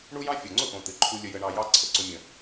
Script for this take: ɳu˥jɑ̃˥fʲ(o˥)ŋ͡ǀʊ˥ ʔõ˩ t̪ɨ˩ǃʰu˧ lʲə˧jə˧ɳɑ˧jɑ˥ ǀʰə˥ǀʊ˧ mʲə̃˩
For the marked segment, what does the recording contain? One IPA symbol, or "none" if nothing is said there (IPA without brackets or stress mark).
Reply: o˩